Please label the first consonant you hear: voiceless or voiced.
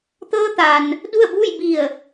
voiceless